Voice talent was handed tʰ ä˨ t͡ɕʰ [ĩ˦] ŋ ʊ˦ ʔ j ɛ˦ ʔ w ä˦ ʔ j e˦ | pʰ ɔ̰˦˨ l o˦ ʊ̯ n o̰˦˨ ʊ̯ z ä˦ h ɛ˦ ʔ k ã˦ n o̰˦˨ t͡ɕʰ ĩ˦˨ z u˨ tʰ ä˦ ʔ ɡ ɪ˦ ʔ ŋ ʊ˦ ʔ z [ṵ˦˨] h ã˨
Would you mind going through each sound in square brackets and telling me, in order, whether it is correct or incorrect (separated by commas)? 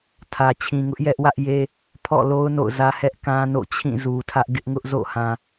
incorrect, incorrect